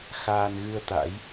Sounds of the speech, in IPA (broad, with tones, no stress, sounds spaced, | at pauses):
x aː˧ n ɣ ɨ˧ ə̯ t̪ a̰˧˥ j